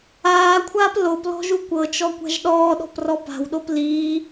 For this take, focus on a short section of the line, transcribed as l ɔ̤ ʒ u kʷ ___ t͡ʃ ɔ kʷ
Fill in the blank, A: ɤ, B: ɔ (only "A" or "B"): A